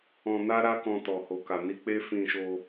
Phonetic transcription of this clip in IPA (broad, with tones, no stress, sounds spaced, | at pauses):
ɔ̃˧ n a˦ ɾ a˦ k ɔ̃˧ t ɔ˨ h o˨ k a˨ n i˧ k͡p e˦ f ĩ˧ ʃ o˧